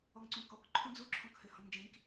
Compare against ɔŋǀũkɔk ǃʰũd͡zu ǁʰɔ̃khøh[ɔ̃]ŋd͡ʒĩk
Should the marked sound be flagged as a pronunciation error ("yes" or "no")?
no